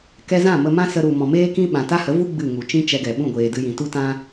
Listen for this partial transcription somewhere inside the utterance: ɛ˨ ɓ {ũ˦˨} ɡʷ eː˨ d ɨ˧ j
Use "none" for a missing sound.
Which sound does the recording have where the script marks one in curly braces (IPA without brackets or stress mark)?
ũ˦˨